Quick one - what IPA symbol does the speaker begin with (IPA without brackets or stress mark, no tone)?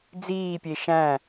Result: d͡z